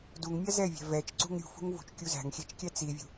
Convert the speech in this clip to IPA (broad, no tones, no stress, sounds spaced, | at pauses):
d u ŋ mʲ a z ɛ vʲ æ̤ v ɛ t͡ʃ ǀ ṳ ŋ ɾʲ ṳ f ṳ ŋ v ṳ t͡ʃ kʲ u z æ̤ ŋ xʲ ɛ t͡ʃ kʲ æ t͡s i vʲ ṳ